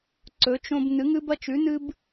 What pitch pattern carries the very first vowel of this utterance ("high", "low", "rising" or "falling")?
rising